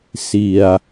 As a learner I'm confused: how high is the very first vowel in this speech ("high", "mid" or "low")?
high